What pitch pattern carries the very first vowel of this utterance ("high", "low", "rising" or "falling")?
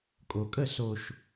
low